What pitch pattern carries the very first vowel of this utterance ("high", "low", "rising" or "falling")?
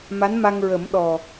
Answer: rising